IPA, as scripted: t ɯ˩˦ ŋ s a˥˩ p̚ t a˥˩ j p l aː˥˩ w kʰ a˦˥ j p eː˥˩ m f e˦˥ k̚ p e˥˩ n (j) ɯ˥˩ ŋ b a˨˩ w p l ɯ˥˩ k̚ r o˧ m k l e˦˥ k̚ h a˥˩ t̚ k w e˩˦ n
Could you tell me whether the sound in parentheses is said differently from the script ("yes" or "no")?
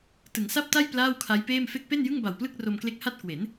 no